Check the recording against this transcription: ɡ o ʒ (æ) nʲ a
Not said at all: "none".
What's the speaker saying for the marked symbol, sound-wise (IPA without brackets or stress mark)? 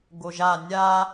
a